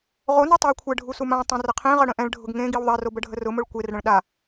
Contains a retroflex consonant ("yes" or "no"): yes